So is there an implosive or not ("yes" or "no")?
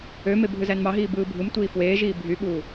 yes